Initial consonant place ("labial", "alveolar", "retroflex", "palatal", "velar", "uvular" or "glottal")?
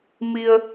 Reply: labial